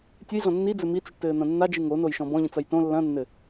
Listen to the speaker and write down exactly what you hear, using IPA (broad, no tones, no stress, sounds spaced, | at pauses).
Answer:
tʲ ɨ j ɮ ɔ̃ nː i d͡z ɘ m i t͡s i ʈ t ɘː n̪ ɐ̃ nː a d͡ʒ ɨ ŋ o n o j ʃ ɔ̃ b ɔ̃ ʎ ĩ t͡s ɐ j t õ lː ɐ̃ nː ɘ